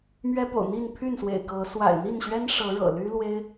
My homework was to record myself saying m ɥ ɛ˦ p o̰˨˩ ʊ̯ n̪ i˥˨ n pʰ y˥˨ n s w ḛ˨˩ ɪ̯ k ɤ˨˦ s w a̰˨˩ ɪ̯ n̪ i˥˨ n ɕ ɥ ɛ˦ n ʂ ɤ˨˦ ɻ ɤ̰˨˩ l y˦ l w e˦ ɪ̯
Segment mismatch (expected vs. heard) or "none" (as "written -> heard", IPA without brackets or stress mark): none